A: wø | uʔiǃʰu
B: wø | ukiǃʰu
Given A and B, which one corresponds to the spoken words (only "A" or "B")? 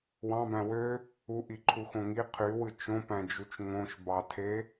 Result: A